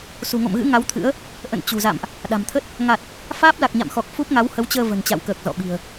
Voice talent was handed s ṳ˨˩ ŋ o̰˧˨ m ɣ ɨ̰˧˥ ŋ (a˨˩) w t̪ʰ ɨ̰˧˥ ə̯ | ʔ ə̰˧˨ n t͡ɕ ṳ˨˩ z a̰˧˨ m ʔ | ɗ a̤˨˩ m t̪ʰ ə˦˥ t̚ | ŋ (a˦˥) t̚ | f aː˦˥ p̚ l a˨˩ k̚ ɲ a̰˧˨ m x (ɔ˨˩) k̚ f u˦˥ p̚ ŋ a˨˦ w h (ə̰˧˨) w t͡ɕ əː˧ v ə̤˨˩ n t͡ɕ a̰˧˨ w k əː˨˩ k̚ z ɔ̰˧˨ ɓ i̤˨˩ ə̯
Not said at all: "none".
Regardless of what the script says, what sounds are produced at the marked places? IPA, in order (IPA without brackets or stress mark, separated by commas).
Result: a˨˦, a˨˩, ɔ˨˩, ə˨˦